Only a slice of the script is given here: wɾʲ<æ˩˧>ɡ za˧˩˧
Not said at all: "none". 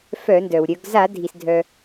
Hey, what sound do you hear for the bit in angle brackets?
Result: œ˩˧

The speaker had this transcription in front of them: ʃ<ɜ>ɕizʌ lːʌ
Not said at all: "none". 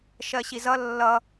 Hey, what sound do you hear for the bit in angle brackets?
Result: ɜ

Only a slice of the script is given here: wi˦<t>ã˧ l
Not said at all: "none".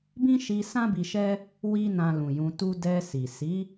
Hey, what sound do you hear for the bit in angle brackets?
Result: n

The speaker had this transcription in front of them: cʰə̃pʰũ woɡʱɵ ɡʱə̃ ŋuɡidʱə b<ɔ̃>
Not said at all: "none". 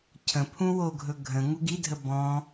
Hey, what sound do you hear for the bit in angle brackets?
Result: ɔ̃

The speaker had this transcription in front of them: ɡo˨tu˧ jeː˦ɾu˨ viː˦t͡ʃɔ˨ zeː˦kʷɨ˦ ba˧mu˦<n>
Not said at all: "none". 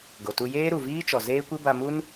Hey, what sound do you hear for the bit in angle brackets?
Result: n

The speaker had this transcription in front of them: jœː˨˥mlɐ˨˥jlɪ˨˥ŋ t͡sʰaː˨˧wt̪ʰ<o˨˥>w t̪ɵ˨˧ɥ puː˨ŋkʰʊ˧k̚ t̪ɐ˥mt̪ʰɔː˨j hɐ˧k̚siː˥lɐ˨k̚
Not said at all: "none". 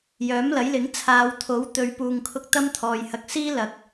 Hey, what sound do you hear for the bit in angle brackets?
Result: o˨˥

